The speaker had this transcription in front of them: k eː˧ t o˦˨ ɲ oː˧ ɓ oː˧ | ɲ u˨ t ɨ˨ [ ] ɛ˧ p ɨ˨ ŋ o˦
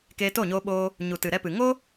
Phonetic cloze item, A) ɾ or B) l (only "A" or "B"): A